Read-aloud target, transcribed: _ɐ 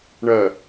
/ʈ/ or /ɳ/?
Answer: ɳ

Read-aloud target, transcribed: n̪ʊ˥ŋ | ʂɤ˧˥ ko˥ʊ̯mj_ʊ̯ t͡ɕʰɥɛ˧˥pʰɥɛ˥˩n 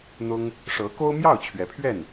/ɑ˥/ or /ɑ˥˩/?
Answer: ɑ˥˩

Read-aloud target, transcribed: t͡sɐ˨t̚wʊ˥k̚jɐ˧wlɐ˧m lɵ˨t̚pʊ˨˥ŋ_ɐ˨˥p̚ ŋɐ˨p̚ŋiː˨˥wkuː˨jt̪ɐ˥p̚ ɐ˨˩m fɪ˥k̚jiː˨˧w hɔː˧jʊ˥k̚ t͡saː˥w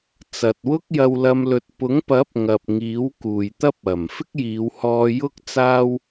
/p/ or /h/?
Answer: p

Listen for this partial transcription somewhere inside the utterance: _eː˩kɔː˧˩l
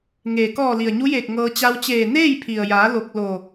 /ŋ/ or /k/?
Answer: ŋ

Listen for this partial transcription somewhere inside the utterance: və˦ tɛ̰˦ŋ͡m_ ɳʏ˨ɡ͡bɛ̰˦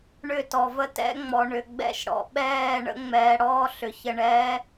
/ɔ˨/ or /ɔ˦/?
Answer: ɔ˨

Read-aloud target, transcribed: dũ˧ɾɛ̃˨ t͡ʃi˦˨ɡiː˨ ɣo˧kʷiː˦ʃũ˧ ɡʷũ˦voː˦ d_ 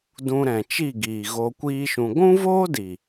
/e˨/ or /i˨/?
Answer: i˨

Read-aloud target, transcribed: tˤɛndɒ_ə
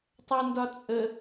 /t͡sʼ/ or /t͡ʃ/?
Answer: t͡sʼ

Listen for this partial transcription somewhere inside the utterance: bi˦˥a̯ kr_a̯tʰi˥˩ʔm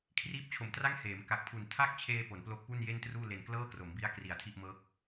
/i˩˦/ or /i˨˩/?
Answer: i˨˩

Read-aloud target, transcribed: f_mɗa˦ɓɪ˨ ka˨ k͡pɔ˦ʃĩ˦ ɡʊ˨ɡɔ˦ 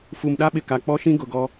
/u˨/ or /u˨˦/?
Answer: u˨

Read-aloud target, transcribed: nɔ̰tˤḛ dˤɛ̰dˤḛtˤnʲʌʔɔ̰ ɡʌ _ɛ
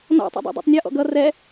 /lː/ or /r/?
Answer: r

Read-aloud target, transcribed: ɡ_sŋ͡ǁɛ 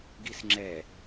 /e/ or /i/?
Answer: i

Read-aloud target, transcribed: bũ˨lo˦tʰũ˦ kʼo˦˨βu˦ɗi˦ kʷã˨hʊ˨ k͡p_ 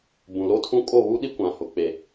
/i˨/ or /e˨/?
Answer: e˨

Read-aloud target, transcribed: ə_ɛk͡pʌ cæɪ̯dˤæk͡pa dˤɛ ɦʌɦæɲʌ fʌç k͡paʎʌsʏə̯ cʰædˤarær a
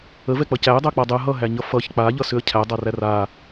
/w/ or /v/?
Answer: v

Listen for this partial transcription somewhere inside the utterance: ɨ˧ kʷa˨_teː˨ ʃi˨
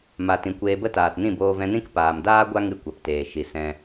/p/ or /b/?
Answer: p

